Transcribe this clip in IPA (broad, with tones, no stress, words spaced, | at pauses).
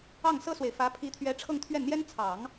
ɑ˥˩ŋsɤ˥swe˨ɪ̯fä˧˥ pʰi˧˥t̪ʰɥɛ˧˥ ʈ͡ʂʰɤ˥˧ŋt̪ʰɥɛ˥˩nn̪jɛ˥n t͡sʰɑ˨˩˦ŋ